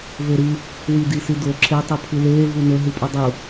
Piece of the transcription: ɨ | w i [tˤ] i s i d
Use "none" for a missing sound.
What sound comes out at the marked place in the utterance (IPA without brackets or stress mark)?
d